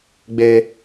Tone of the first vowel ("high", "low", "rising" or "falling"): high